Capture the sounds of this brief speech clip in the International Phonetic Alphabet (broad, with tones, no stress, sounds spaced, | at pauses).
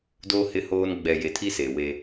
d oː˦ h ɪ˦ h oː˦ n ɡ͡b ɛ˨ j e˨ tʰ i˦ s e˨ w e˦